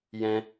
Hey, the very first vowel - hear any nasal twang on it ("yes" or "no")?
yes